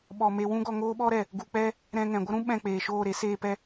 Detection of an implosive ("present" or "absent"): present